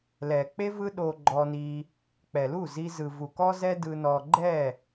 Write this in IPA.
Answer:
l ɛ˨ k͡p e˦ v ɯ˦ ɗ o˧ ɡ͡ǃ ɔ˧ n i˧ | k͡p ɛ˨ l u˦˨ z i˧ z ɯ˨ v u˨ k ɔ˦ z ɛ˦ d ɯ˧ n ɔ˧ ɡ͡ǃ ɛ˦˨

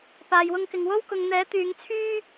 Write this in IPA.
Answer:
p aː˨ j w ʊ˧ ŋ k ɪ˨ ŋ w o˥ w k ʊ˨ ŋ n̪ ɛː˨˥ t̪ yː˨˧ ŋ t͡sʰ yː˥

